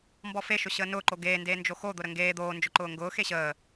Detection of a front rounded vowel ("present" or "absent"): absent